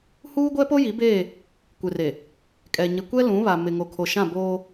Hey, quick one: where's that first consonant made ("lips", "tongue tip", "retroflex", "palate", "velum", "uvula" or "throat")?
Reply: throat